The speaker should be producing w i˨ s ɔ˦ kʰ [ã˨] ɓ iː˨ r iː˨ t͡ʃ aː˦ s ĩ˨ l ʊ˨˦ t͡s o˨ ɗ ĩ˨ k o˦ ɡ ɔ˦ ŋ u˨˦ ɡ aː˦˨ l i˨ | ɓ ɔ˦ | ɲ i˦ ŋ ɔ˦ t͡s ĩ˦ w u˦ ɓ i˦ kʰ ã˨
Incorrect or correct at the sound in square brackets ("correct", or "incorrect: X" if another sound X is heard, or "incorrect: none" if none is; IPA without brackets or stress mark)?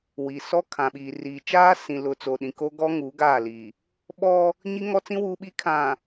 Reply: correct